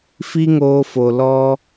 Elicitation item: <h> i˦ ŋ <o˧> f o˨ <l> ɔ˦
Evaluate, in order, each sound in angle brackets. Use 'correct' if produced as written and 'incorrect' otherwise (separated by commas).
incorrect, incorrect, correct